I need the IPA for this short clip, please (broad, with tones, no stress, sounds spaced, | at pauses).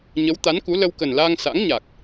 ɲ ə˨˦ w t̪ a˨˦ n k u˨˦ l ə˧ w k ə˨˩ n l aː˧ ŋ s a̰˧˥ ŋ ɲ a˨˩ k̚